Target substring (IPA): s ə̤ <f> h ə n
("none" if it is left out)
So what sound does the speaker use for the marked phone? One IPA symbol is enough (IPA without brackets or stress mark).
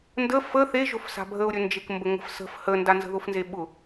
f